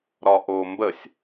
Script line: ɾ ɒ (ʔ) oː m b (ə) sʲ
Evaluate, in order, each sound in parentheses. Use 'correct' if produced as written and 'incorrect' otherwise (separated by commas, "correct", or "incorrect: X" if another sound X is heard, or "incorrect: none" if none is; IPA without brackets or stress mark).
correct, correct